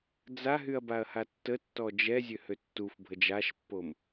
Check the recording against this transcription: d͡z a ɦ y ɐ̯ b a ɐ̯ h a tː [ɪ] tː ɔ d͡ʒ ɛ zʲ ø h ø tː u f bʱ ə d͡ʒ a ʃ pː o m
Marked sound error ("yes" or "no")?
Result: yes